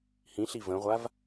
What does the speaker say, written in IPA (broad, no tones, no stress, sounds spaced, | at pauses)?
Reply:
h ĩ ɬ i v ə̃ ʁʷ a v